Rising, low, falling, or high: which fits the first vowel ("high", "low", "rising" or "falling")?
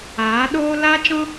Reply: rising